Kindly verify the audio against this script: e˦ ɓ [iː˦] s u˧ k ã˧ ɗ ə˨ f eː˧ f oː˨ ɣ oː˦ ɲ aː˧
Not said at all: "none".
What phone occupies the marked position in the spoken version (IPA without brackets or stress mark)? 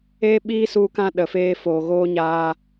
iː˦